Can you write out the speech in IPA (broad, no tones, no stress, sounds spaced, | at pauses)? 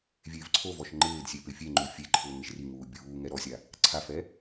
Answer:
vʲ eː v ǀʰ o v ɔ ʃ ŋ͡ǃ ɪː d sʲ e p ɪ fʲ e ŋ͡ǃ u fʲ e ǃʰ ʊː ŋ ɪ ʃ r i ŋ uː bʲ uː ŋ ɛ ɾ ɔ sʲ a | ǀʰ a f ɛ